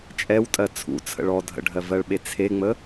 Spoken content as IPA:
t͡ʃʼɛwtʼɜ t͡sʰṵt͡sʰə̰ɭ ɔ dʱə̰ɖʱɜvɜɭɓe t͡sʰeŋ͡mə

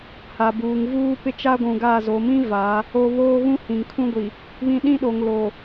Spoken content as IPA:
ha˨buː˨ŋvuː˦ pɪ˦t͡ʃa˦ɡʷũ˨ɡa˦˨ zo˨mĩ˦ va˨˦ | o˦ βoː˦ ɣũ˦hĩ˨ŋkʰũ˦ɡʷi˨ | βĩ˦ ɗĩ˦ɗo˨ŋ lo˨

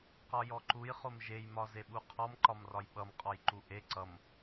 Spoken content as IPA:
qɒjɔǃuj χomʒej mɒzeɓuqʰɔm ǃɒmrɒjɓʌm qʼɔjǃuʔe ǀʌm

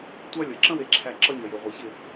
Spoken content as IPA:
tʷa˦lʲʌ˨ ǁə̃˦we˨ǁʰæ˨ ǁʌ˦ɲʌ˨je˨ ʁʷe˨çɪ˦˨

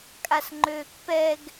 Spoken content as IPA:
kʼasŋ͡ǃøːkpɛɡ

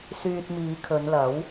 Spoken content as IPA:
syː˧t̚miː˨˧kʰɵ˨˧nlɐ˨˥w

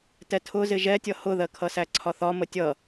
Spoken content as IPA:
tɛtʰʊ zɪʒɛtʲʌ hʊðɜkʰʌsæ ǀʰɒθɒ mətʲʌ

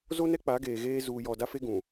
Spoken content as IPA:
zo˦nɛ˦ k͡pa˨˦ɡeː˨ɣeː˦ zuː˨jɔ˨da˦fe˦ ɡũ˨

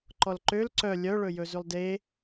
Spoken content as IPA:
ǃɔlǃøl ǀœ lʲœɭɵjɵzʉlˠ de

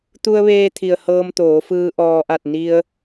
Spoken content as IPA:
t̪u˧ə̯ʋeː˧t̪ʰi˩ə̯ hɤː˧mt̪oː˩˧fɯː˧ ʔɔː˧ʔa˥˨t̚ ni˧ə̯

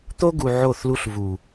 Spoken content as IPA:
t̪o˦ɡu˨ ʕo˦˨θlu˦ɬ vu˨

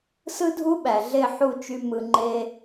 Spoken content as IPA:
sɯ˦dʱu˦ɓæ˨ɮe˦˨ ħu˦˨t͡ʃy˧ mɯ˧ŋ͡ǃe˦

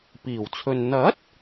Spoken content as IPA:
piː˨˩wt͡sʰɵ˨n n̪ɐ˨˥t̚

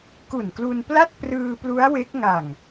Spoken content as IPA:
ku˨˩nklu˧npla˥˩t̚ prɯː˧ plu˦˥a̯ we˦˥k̚ ŋa˨˩ŋ

